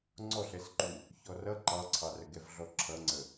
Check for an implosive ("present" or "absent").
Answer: absent